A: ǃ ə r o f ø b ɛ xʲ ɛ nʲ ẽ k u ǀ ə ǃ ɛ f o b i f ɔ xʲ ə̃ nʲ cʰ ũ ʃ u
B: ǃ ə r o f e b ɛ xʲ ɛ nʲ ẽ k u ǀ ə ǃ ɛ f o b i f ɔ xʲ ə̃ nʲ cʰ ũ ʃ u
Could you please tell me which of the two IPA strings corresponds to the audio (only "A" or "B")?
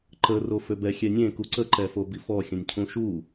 A